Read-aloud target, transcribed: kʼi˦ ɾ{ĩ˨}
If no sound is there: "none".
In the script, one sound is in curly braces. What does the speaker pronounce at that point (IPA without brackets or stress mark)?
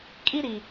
i˨